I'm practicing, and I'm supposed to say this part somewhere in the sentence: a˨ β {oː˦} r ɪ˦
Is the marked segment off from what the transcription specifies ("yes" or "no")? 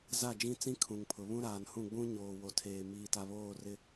yes